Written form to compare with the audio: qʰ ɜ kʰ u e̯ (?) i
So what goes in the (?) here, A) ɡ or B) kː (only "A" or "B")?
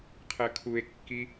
B